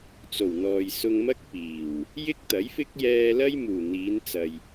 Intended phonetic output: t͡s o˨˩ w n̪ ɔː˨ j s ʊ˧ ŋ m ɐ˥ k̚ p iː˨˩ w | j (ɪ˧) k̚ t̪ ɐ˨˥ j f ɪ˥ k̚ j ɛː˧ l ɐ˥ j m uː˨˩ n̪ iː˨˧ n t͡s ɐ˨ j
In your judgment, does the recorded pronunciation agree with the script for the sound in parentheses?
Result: no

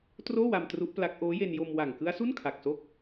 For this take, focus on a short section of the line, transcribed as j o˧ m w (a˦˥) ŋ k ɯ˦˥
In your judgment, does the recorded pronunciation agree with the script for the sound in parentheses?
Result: no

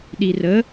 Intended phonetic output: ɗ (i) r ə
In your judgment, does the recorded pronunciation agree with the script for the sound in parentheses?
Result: yes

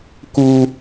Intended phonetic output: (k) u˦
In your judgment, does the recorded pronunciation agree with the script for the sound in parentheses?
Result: yes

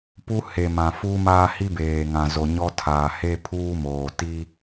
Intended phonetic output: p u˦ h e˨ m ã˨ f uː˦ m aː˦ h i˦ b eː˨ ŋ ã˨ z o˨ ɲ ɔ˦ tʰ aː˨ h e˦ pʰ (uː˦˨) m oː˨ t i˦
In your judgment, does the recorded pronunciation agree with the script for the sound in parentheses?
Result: no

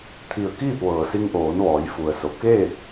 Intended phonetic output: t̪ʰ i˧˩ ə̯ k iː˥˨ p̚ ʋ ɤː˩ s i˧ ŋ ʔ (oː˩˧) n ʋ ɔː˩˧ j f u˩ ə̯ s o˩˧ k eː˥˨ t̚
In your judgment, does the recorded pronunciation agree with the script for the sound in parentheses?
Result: yes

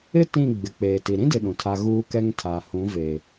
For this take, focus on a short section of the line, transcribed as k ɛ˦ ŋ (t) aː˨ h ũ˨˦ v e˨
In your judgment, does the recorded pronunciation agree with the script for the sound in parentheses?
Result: no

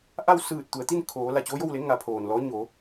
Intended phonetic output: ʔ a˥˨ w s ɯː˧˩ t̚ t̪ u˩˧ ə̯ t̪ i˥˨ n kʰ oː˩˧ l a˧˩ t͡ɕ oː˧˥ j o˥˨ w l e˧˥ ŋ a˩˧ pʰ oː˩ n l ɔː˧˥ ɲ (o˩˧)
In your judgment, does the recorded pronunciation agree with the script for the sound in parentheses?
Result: yes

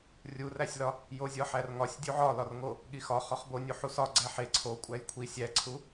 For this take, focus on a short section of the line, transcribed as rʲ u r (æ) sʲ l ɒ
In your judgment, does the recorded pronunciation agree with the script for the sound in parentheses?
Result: yes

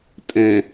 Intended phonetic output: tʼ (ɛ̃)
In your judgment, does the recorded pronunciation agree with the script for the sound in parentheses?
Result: yes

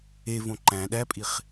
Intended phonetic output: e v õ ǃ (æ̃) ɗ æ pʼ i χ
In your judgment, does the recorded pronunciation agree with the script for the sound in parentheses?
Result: yes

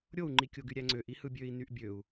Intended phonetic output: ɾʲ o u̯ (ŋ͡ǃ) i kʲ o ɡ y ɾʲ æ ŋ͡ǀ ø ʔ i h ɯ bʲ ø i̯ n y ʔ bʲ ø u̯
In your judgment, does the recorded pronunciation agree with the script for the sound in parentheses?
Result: yes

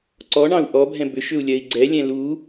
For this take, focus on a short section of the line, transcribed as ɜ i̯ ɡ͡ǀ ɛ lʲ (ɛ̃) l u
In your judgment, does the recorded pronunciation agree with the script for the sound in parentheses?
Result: yes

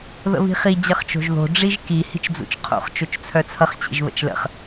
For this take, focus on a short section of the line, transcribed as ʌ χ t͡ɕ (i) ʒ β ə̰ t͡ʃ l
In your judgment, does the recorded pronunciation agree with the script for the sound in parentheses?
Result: no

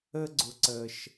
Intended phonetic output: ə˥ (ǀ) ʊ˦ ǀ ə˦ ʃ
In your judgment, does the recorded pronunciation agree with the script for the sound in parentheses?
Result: no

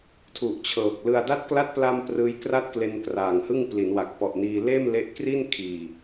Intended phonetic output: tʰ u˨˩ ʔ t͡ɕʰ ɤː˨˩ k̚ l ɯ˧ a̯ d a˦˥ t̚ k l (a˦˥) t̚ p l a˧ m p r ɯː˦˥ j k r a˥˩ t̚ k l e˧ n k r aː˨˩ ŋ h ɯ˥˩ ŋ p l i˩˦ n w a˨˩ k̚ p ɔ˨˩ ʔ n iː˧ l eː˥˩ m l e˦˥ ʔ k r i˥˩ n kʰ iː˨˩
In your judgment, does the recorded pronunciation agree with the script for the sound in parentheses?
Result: yes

